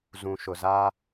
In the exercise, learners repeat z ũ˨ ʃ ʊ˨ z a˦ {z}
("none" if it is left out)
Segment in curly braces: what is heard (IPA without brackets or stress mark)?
none